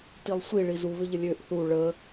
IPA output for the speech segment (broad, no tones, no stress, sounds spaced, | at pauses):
t i lˠ sʷ i ɭ i z u β ʏ ʎ ə lʲ ø ʔ θ u ɭ ə